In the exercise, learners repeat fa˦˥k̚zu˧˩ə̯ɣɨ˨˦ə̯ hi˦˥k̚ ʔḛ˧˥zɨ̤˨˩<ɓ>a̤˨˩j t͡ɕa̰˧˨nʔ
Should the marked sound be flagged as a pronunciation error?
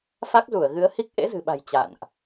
no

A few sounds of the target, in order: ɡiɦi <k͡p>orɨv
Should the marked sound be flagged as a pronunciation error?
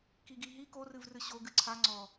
yes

